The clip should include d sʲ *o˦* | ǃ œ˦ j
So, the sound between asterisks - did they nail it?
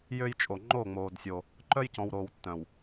yes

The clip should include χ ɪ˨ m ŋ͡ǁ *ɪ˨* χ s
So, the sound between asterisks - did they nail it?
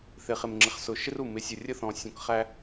yes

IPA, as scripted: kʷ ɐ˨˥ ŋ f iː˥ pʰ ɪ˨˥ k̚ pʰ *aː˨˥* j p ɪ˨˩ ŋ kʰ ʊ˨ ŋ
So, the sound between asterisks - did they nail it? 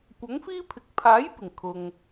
yes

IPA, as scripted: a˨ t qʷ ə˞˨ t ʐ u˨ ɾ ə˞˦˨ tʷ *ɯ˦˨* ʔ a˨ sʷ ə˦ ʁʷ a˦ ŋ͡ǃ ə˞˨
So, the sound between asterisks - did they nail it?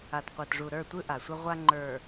no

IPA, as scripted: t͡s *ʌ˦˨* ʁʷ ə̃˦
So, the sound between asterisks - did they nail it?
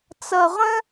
no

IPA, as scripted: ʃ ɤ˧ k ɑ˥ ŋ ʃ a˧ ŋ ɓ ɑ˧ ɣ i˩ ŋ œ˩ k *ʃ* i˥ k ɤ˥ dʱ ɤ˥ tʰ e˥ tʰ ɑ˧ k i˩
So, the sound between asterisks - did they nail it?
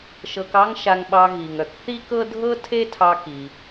no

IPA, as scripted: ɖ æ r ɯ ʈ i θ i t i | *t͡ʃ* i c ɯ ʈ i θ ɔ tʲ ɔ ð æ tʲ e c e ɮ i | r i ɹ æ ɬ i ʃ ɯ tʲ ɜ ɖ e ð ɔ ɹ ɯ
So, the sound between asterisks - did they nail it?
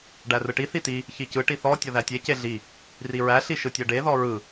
no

